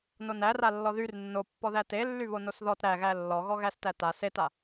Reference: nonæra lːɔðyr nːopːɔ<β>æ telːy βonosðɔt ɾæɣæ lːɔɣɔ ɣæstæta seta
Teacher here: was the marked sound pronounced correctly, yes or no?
no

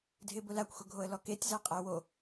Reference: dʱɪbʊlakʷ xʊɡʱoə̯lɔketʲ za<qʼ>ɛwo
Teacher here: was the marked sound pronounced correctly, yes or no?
yes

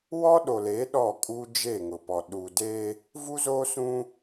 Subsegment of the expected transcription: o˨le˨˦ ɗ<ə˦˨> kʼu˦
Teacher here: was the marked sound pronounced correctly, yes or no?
no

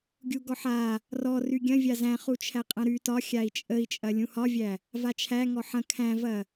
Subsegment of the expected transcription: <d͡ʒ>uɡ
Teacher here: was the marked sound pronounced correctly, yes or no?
no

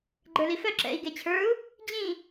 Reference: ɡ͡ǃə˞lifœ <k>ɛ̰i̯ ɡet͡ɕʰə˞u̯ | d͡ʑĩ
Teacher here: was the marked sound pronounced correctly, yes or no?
no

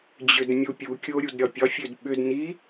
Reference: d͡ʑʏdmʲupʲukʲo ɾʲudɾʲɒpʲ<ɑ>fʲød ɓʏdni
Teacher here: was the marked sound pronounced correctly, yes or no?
no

